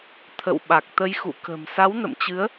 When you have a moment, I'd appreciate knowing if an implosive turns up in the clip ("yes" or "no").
yes